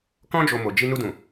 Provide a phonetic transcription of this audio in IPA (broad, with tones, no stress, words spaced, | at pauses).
kɔ̃˦d͡ʒo˧ mo˧ d͡ʒi˧ nu˧dũ˨